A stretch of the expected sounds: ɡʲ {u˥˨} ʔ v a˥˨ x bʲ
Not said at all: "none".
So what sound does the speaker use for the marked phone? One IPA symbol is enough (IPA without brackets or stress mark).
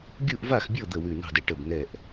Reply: u˥˨